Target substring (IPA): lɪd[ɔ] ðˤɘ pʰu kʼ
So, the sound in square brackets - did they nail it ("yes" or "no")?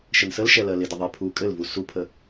no